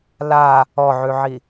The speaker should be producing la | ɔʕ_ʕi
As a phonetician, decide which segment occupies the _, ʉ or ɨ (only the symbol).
ʉ